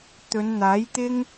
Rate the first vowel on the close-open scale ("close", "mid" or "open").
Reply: mid